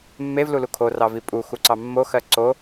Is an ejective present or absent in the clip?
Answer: present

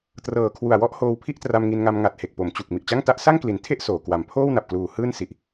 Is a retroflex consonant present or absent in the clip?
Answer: absent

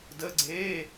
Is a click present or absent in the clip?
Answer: present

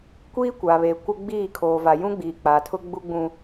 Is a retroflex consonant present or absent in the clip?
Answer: absent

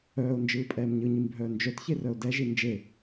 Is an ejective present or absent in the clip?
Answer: present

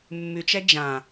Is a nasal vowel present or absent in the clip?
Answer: present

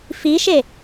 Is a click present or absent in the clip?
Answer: absent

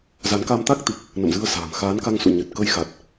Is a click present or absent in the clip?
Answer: absent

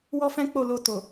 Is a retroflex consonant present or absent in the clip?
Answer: absent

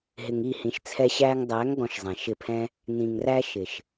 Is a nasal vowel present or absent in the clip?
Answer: present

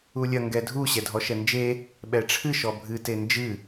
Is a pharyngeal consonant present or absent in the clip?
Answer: absent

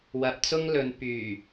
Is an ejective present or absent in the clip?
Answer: absent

